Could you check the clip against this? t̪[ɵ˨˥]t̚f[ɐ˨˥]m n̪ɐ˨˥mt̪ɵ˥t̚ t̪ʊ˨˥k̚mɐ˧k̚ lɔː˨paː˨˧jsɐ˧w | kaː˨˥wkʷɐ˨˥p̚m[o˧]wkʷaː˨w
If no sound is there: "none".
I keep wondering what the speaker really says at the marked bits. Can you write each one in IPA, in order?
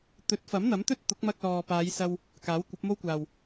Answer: ɵ˨˥, ɐ˨˥, o˥

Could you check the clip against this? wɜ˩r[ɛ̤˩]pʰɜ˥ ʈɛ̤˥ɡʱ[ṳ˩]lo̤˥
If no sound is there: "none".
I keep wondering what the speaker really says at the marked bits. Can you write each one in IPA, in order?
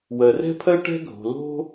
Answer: ɛ̤˥, o̤˩

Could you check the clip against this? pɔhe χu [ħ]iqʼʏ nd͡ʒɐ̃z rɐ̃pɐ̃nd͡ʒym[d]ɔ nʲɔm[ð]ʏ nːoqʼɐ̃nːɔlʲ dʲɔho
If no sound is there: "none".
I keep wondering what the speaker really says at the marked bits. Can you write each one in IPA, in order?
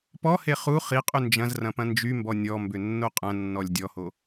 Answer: χ, b, b

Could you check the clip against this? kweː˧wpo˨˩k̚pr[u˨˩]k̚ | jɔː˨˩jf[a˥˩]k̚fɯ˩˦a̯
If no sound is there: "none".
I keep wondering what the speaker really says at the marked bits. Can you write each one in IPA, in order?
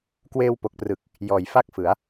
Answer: ɯ˨˩, a˥˩

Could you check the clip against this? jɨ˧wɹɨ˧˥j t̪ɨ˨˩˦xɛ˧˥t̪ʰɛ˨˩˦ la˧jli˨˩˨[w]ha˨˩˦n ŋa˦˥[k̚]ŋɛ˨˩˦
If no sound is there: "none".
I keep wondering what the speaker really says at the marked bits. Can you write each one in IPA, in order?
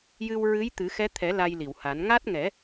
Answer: w, t̚

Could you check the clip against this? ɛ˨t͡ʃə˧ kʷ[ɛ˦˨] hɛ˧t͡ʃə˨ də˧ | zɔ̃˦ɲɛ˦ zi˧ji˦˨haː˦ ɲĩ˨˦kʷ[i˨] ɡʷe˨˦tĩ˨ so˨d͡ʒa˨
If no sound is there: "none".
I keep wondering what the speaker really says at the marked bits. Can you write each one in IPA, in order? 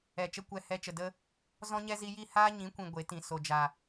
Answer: ɛ˦˨, ĩ˨

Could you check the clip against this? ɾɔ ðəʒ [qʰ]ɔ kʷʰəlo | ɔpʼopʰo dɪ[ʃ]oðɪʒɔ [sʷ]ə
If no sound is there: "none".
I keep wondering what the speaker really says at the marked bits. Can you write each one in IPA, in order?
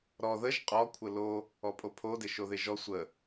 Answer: qʼ, ʃ, sʷ

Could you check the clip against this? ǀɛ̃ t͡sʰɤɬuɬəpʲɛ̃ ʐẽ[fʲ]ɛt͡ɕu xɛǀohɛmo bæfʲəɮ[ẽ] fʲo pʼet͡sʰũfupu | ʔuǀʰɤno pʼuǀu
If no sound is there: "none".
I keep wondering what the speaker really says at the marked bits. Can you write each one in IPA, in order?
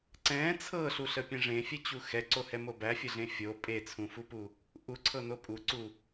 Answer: fʲ, ẽ

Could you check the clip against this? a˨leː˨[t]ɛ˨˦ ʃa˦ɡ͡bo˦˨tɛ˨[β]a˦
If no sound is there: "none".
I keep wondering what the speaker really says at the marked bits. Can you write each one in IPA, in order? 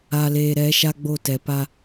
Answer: ɾ, p

